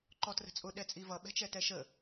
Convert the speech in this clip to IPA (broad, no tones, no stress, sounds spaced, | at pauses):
ǃ ɔ t r ə̤ t͡sʼ ʊ ɗ ɛ t͡sʼ i v ʌ ɓ ɛ̤ t͡ʃ ɛ t ɛ ʃ ə